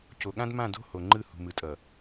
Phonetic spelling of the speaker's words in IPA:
c o˨ ɠ ã˦ d m ã˦˨ d o̤˦ h o˨ ŋ͡ǃ ɯ˦˨ h ṳ˨ m ɯ˨ tʼ ʌ˨

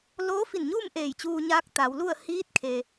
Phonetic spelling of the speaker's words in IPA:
l oː˧˥ f i˧˩ n ɲ uː˥˨ m ʔ eː˧˩ j t͡ɕ uː˧ ɲ aː˧˥ k̚ t̪ a˩˧ w l u˥˨ ə̯ h iː˧˥ t̚ kʰ e˩

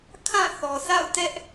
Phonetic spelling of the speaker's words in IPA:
kʰ ã˦˨ θ ɔ˨ sʰ a̰˦˨ ʊ̯ t ɛ˦ ʔ

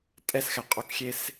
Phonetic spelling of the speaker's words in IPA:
tʼ ɛ s x ɛ qʼ o k xʲ e s

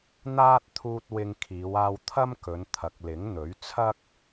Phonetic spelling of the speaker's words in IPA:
n̪ aː˥ t̚ t̪ʰ uː˧ t̚ w ɪ˧ ŋ kʰ iː˨˧ w aː˧ w t̪ʰ ɐ˥ m k ɵ˨˧ n t̪ʰ ɐ˨˥ k̚ l ɪ˨˥ ŋ n̪ ɵ˨˥ ɥ t͡sʰ ɐ˥ k̚

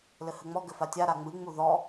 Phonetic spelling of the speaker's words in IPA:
l ɘ h ɘ ŋ͡m ɔ ɡ ɘ f a tʲ a ɾ a ŋ͡m ɨ ŋ͡m u ð ɔ

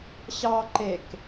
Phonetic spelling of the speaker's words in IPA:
ɕ ɑ ǃ e k

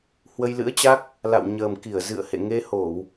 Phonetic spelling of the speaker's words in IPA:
h w ə˧ j l ɨ̰˧˥ ə̯ t͡ɕ a˦˥ k̚ | l a̰˧˨ w ɲ əː˨˩ m k i˧˩ ə̯ z ɨ̰˧˨ ə̯ h ḛ˧˨ ŋ e˧ h o˧˩˨ w

